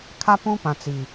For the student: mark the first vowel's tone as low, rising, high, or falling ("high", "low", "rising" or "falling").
high